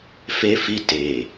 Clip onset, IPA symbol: f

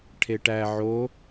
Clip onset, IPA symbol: ʈʰ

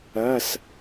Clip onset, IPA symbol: ɜ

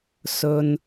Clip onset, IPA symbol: s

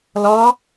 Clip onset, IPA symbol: l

